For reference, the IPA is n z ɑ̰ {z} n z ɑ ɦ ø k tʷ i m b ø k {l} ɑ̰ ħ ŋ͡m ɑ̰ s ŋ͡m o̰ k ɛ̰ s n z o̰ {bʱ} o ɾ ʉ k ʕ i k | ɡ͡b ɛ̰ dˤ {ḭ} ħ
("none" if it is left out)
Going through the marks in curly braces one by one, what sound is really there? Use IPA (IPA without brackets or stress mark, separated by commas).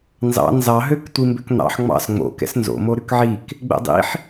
none, n̪, m, ḭ